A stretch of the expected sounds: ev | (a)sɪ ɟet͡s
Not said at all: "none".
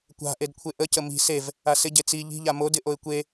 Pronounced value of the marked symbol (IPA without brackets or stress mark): a